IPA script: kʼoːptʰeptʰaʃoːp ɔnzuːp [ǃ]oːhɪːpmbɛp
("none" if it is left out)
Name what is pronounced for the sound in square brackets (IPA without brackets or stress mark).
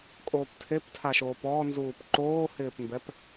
ǃ